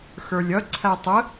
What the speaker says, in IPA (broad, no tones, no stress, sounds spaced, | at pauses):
x ə˞ lʲ ʌ ǀʰ æ tˤ ə